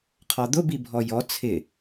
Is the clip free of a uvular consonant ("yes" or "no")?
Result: no